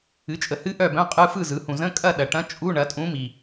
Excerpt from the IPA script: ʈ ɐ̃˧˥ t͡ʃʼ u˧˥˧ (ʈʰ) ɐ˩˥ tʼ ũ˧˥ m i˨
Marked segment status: incorrect: ɳ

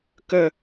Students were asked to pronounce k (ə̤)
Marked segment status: incorrect: ə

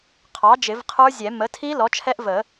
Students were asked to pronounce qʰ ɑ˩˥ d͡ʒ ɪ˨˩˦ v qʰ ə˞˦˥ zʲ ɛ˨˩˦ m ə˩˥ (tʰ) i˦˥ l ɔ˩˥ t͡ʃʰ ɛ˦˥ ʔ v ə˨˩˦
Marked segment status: correct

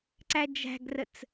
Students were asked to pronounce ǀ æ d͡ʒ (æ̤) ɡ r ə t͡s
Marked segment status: correct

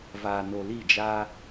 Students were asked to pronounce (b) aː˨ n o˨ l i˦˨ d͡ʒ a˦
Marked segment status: incorrect: v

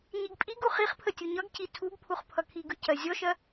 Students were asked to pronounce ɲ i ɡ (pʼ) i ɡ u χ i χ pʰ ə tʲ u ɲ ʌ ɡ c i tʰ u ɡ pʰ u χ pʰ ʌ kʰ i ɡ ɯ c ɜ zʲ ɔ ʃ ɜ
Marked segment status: correct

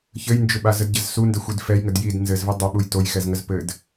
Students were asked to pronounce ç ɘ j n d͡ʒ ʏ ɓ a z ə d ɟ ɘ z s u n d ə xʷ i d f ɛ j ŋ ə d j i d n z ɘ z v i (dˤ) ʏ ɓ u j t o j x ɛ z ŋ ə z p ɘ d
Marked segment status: correct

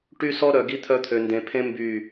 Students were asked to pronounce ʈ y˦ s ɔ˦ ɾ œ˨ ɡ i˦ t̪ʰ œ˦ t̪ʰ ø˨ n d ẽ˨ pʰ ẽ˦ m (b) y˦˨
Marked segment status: correct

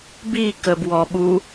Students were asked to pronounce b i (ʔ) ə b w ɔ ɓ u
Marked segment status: incorrect: k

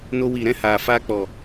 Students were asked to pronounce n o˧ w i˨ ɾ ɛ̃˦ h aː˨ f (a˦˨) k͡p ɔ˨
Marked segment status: incorrect: a˧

